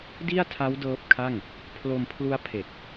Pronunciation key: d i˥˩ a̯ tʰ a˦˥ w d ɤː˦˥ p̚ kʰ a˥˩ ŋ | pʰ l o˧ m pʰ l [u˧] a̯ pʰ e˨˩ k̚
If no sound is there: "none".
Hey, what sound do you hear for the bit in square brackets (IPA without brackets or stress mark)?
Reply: u˦˥